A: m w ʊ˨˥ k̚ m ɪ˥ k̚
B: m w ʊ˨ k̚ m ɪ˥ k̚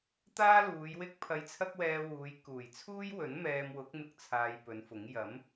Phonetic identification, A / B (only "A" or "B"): A